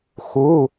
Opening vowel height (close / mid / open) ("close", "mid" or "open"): close